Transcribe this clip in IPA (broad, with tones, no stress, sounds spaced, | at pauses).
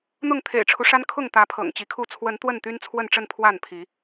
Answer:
n̪ ʊ˥˨ ŋ t̪ʰ ḛ˨˩ ɪ̯ ʈ͡ʂʰ u˦ ʂ a˦ n kʰ ʊ˥˨ ŋ t̪ ä˨˦ pʰ ɤ̰˨˩ ŋ t͡ɕ i˨˦ kʰ u˥˨ t͡sʰ w ə˨˦ n t̪ w ə˥˨ n t̪ y˦ n t͡sʰ w ə˥˨ n ʈ͡ʂ ə˥˨ n pʰ w a˥˨ n pʰ i˨˦